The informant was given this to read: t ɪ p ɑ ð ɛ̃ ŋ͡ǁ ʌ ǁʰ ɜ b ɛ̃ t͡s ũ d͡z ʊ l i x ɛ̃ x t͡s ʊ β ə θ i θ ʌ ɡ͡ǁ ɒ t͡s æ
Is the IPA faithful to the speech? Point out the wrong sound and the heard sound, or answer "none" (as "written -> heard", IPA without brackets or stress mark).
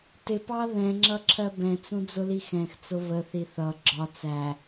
none